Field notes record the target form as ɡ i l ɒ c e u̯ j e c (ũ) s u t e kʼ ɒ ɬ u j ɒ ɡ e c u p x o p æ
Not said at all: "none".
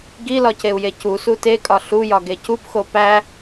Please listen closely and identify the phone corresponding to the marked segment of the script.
u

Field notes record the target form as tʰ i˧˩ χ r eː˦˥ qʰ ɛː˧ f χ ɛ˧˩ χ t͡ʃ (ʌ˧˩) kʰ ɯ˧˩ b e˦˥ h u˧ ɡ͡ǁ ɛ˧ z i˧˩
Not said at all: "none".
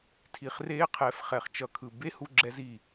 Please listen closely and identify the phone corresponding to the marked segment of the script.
ʌ˧˩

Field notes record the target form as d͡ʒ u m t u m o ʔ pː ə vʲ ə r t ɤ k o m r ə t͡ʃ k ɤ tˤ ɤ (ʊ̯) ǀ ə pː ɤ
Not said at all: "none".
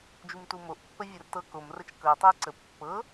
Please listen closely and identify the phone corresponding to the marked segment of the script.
ə̯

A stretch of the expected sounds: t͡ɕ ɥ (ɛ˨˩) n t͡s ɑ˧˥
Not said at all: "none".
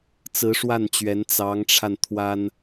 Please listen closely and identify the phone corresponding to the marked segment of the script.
ɛ˧˥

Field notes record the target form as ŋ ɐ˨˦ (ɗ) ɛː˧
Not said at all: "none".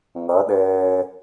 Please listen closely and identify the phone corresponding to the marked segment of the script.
ɗ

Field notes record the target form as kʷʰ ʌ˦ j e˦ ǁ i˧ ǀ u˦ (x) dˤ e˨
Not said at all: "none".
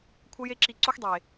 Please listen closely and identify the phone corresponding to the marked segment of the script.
x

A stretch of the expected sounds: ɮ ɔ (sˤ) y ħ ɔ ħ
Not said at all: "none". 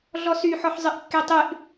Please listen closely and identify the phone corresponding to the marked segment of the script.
s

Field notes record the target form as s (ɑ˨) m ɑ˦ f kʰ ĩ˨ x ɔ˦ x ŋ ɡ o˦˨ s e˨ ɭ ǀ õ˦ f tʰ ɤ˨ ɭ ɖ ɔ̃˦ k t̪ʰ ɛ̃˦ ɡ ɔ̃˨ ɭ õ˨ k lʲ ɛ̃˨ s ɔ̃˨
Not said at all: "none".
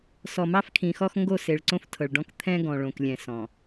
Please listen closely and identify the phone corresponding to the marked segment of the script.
ɔ˨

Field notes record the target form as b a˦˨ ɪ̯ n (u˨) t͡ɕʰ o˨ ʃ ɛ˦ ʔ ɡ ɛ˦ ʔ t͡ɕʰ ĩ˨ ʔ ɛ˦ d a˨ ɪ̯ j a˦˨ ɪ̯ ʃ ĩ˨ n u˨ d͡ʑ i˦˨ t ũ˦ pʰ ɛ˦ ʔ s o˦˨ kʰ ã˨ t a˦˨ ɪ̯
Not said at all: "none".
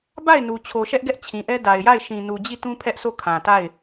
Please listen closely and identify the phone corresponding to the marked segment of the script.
u˨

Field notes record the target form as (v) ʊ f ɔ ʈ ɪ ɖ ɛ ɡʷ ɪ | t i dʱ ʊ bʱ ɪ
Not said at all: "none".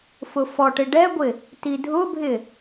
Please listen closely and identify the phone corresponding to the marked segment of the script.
f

